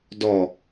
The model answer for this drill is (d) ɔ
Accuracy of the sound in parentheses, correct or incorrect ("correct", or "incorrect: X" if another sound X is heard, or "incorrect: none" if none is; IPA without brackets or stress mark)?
correct